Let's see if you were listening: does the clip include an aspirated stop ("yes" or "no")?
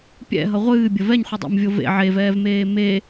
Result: no